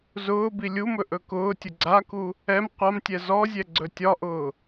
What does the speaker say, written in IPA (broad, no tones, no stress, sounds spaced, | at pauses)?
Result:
z ʊː b i lʲ u m ɵ ʔ ɵ k ʊː tʲ ʊ ɡ͡ǀ a k u | ɛ m qʷ a m tʲ ɛ z ɔ zʲ ɛ ɡ͡ǀ ɵ tʲ ɒ ʔ ʊː